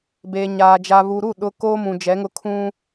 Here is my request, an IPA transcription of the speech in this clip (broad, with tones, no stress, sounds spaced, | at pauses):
b eː˨ ɲ aː˨ d͡ʒ a˨ β u˨ ɾ u˦˨ ɗ ʊ˨ k oː˦ m ũ˨ d͡ʒ ɛ˨˦ ŋ ʊ˦ kʰ ũ˦